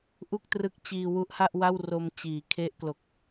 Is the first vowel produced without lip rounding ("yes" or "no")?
no